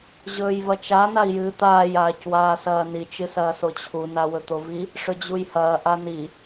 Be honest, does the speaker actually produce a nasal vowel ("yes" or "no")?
no